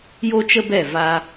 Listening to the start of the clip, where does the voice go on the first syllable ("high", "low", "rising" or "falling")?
high